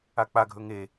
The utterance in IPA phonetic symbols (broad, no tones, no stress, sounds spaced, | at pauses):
a k͡p a ɡʱ ɵ ŋ e